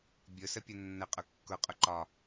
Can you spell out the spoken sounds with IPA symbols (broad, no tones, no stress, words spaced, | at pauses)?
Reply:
bʲʊsəpʲʊ nːəqʼʊ kːʊqʼʊ ǃɒ